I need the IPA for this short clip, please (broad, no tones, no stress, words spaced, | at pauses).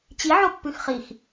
t͡ɕi ʕopːʉxχix